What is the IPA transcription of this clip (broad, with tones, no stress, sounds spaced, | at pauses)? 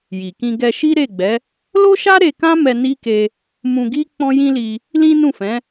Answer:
j i˨ k ĩ˧ ɡ ɛ˧ ʃ i˦ ɾ e˦˨ ɡ͡b ɛ˨˦ | l o˦ ʃ a˦ ɾ e˧ k ã˦ m ɛ˧ n i˦ k e˧ | m ũ˧ ɡ i˦ k͡p ɔ̃˦ j ĩ˦ l i˧ | l ĩ˦ n ũ˦˨ f ɛ̃˨˦